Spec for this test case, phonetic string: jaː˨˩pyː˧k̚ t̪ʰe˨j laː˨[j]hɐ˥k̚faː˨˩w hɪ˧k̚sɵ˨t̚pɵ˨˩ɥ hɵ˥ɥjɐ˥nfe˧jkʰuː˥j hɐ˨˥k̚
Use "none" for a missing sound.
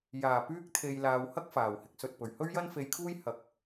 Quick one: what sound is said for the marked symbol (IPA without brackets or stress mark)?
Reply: w